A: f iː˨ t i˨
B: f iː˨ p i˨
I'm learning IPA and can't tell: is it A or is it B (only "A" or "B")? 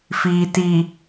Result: A